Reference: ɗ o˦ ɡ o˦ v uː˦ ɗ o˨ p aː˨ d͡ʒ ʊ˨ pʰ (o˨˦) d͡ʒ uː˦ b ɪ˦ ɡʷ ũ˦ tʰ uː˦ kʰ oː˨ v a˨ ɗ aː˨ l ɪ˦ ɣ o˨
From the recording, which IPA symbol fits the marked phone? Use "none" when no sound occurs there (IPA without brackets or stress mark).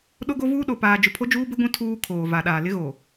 o˦